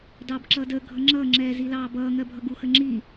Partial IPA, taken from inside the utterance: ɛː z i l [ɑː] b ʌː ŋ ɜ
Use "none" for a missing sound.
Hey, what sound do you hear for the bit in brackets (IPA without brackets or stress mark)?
ɑː